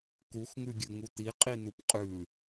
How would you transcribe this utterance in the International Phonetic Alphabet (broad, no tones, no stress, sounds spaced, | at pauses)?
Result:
k u x ŋ ʉ ɡʲ ʉ ŋ u t̪ i qʼ i n̪ u p qʼ ʉ